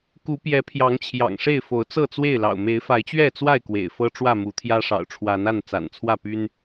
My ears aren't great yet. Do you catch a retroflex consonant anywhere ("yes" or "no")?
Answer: yes